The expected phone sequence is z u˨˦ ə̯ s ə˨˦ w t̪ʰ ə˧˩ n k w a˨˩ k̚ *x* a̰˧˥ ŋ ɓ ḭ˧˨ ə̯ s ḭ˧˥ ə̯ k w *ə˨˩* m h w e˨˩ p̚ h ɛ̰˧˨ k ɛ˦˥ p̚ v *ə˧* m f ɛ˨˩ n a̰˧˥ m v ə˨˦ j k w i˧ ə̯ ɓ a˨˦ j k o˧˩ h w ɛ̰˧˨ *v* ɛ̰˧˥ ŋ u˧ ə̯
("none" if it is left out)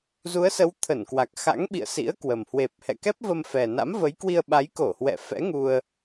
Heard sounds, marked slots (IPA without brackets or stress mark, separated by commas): x, ə˨˩, ə˧, f